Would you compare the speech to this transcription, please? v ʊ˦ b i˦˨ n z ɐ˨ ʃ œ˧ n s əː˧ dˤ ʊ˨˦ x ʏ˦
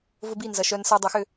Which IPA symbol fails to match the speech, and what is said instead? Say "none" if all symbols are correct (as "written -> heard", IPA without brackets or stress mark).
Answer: none